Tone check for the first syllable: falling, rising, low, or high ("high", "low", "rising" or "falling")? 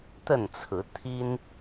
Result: falling